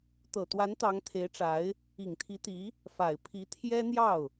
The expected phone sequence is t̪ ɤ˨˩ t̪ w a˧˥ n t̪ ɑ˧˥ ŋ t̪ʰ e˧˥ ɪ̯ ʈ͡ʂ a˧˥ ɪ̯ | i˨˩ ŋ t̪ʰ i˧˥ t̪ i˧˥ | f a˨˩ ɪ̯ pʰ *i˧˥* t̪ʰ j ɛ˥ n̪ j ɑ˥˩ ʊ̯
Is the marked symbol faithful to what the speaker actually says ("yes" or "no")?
yes